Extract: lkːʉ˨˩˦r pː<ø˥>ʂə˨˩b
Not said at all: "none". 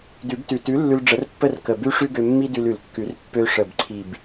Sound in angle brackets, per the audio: ø˧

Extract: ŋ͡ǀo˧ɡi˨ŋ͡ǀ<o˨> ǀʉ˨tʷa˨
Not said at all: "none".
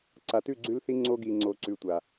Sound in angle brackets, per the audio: o˨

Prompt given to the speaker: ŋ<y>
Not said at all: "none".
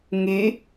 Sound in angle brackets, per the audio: y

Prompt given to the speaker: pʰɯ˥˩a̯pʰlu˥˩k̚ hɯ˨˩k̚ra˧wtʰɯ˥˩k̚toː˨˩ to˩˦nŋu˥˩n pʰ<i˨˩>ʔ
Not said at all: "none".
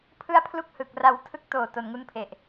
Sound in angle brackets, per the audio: e˨˩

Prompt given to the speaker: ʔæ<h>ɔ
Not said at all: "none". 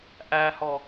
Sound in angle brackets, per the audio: h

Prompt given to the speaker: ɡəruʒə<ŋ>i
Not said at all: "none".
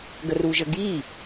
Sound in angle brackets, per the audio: ɡ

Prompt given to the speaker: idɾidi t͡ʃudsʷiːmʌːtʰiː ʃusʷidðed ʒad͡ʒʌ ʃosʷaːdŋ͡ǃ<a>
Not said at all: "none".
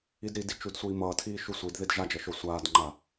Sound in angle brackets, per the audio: a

